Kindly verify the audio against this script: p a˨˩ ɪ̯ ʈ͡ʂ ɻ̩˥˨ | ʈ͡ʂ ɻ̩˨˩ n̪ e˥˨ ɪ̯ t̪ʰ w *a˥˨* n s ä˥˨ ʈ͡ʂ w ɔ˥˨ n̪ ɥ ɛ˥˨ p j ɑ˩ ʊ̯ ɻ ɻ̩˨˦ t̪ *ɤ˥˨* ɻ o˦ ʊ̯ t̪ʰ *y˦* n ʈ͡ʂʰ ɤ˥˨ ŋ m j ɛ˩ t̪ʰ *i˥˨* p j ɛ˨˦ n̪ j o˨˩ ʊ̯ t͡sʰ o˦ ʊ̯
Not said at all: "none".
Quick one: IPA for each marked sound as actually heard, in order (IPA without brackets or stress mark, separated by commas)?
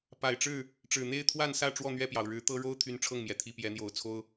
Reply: a˥˨, ɤ˦, y˦, i˥˨